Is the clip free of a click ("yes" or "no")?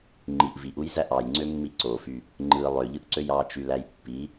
no